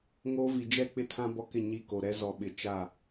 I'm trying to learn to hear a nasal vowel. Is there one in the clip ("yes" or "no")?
yes